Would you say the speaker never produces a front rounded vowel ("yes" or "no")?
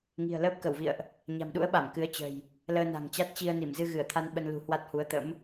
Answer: yes